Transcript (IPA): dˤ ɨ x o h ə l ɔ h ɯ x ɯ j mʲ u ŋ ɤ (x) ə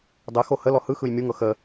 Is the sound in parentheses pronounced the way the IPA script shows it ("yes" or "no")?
yes